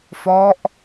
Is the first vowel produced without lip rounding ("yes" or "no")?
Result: no